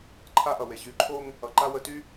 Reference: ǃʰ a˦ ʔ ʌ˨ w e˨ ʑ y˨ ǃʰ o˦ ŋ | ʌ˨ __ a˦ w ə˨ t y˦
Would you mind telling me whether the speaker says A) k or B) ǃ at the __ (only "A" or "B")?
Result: B